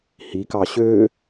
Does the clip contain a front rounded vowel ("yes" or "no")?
yes